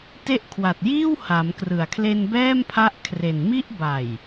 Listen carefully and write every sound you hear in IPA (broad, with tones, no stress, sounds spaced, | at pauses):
t e˦˥ ʔ kʰ w a˨˩ t̚ j iː˥˩ w h a˩˦ m k r ɯ˨˩ a̯ kʰ l e˧ n b ɛː˥˩ m pʰ a˦˥ ʔ kʰ r e˨˩ n m i˥˩ ʔ b a˨˩ j